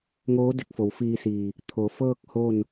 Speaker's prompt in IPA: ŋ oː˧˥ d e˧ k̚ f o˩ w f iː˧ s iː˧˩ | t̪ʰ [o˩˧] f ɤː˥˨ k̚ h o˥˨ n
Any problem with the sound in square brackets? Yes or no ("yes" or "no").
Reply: no